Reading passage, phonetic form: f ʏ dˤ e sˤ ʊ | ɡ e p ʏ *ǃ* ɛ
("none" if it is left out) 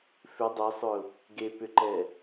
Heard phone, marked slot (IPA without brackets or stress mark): ǃ